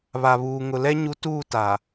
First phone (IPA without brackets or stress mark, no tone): β